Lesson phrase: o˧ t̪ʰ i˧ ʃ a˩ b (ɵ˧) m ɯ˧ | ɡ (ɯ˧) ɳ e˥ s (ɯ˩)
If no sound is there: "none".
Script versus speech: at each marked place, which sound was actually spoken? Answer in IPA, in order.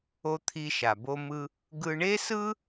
o˧, ɯ˧, ɯ˥

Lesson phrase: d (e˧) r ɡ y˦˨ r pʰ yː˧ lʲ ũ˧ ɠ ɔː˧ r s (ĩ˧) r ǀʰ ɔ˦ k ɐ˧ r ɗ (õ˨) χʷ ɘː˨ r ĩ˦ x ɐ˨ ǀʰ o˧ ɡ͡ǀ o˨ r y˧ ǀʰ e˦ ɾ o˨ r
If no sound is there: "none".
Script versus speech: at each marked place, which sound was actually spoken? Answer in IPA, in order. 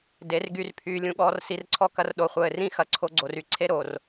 e˧, i˧, o˨

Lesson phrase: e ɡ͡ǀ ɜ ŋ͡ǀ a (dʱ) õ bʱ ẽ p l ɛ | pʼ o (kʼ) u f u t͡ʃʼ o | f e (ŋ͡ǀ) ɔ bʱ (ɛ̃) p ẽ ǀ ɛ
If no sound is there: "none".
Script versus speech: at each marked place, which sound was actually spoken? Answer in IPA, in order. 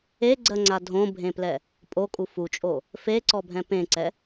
dʱ, kʼ, ǀ, ɛ̃

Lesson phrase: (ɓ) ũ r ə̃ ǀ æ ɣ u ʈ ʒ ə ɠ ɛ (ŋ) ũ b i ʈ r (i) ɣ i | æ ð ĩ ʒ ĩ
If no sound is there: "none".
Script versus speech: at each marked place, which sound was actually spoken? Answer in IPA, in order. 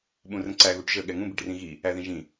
ɓ, ŋ, ĩ

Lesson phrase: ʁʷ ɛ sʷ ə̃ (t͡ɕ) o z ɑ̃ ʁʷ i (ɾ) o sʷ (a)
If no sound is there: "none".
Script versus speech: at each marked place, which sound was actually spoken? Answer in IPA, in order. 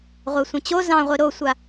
t͡ɕ, ɾ, a

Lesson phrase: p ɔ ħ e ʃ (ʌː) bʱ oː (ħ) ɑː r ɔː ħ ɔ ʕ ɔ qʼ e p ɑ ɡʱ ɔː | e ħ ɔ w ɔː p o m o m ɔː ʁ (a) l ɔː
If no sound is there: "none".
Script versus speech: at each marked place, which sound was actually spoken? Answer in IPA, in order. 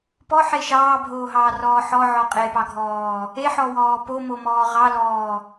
ɑː, ɦ, ɑ

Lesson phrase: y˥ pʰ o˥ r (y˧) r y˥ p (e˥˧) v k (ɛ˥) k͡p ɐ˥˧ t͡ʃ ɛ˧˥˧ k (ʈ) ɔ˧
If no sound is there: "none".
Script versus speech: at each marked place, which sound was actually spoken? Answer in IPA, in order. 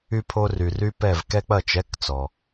y˧, ɛ˥˧, ɛ˥, t͡s

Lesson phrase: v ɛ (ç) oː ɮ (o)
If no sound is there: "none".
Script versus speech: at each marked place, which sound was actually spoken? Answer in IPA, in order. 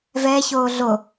ç, o

